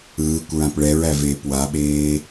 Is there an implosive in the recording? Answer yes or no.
yes